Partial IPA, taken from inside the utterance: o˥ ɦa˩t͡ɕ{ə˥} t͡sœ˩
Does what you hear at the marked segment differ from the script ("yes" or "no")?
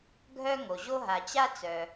yes